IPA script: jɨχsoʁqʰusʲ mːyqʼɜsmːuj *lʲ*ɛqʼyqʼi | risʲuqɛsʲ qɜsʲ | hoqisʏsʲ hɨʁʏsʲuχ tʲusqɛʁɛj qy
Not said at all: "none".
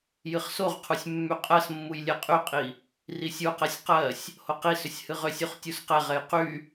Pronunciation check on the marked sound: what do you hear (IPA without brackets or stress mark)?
lʲ